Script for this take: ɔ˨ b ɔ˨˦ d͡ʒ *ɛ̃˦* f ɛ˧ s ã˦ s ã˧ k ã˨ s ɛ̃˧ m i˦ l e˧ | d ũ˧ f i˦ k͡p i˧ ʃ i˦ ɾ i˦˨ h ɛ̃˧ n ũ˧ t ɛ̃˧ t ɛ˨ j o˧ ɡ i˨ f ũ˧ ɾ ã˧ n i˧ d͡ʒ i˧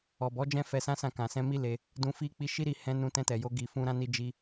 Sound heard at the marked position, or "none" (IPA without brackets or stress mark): ɛ̃˦